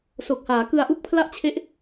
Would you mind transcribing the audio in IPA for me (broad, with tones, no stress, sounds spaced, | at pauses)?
s o˨˩ k̚ h aː˩˦ k ɯ˧ a̯ ʔ u˥˩ k̚ pʰ l a˥˩ ʔ t͡ɕʰ e˦˥ ʔ